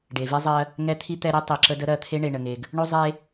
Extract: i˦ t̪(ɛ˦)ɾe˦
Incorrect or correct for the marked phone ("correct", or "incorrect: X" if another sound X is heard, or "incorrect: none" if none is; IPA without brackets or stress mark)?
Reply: correct